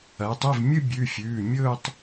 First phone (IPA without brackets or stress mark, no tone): ɐː